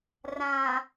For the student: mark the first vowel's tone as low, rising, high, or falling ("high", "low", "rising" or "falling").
low